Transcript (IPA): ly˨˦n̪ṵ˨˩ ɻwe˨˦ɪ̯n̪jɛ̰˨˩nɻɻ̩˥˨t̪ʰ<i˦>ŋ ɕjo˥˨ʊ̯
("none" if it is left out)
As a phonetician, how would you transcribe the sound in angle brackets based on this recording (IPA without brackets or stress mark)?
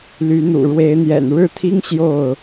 i˦